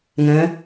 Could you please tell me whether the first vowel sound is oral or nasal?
nasal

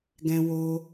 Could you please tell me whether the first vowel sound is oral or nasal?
nasal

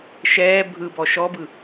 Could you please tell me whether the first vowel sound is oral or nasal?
oral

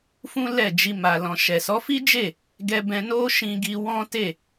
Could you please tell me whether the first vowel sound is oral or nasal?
nasal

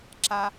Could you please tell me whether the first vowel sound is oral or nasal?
oral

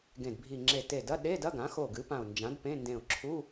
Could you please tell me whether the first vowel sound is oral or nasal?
nasal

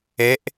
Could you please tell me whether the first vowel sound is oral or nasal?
oral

